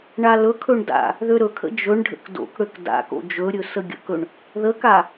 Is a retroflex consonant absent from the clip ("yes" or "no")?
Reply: no